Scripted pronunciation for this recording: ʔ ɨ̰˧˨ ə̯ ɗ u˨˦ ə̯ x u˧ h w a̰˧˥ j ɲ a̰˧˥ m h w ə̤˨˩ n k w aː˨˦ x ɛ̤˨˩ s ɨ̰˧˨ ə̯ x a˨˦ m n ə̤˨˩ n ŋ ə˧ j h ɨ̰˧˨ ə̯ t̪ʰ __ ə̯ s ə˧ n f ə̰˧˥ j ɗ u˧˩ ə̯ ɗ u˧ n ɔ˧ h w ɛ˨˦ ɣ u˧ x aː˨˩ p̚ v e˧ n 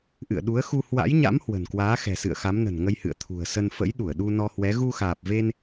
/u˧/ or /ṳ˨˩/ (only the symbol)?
ṳ˨˩